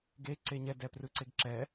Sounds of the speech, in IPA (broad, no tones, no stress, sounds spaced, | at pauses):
ɡ e ǀ e ɲ ɛ d ɛ p r ɯ ǀ e ɡ ǁ ɛ